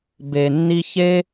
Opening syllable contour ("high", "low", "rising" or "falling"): low